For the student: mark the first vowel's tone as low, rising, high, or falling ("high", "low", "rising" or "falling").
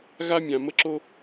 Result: high